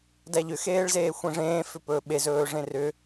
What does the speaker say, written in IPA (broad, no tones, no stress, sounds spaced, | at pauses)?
d æ ʎ ʏ x eː ɭ z eː xʷ ẽ ʐ ẽː f ʏ p ɵː ɓ e z ɵː ʐ ẽ r ʏ